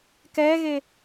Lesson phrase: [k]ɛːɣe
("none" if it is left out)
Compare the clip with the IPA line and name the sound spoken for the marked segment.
k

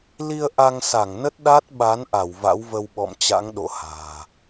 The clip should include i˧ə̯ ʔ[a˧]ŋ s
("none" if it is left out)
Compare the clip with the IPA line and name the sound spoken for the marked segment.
a˧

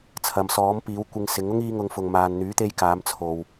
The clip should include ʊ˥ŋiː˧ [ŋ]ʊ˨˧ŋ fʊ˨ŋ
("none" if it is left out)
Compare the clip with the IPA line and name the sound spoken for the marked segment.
ŋ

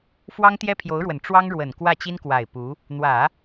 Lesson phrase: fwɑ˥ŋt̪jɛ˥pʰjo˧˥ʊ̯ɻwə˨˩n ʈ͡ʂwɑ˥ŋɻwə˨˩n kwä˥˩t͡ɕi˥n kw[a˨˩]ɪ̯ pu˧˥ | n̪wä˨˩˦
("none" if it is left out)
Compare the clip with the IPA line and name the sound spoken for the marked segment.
a˨˩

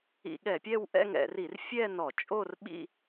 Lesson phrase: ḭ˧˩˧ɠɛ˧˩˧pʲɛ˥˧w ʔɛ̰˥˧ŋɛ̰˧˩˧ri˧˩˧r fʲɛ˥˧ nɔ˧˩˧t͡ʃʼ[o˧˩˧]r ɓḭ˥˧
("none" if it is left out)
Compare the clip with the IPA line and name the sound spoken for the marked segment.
o˥˧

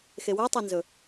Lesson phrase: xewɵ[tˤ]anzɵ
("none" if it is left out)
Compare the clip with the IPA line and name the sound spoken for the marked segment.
tˤ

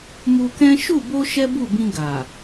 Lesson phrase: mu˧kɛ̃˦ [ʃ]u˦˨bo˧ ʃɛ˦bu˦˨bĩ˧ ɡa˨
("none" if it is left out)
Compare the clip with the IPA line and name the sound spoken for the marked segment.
ʃ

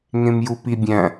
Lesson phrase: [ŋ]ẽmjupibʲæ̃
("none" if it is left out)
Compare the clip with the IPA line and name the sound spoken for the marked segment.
ŋ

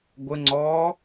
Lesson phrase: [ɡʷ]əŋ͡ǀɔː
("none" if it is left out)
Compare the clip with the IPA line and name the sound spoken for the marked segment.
ɡʷ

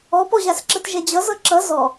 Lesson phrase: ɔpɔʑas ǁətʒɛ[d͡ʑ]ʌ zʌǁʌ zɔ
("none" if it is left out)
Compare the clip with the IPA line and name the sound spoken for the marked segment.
d͡ʑ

